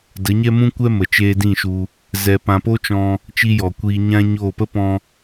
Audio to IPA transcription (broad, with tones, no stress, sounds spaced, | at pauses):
d ə˨˦ ɲ ɛ˦ m ũ˦ kʷ ɛ˦ m ə˨ t͡ʃ eː˧ d ĩ˦˨ ʃ u˧ | z ɛ˨ p ã˨ p o˦ t͡ʃ ɔ̃˧ | t͡ʃ i˧ j ɔ˨ kʷ iː˧ ɲ ã˦ ɲ o˦˨ p ə˦ p ɔ̃˧